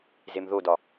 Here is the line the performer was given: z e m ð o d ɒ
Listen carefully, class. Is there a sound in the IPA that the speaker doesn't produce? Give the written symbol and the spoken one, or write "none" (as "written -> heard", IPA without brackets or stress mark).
none